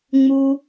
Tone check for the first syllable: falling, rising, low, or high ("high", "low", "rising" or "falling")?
high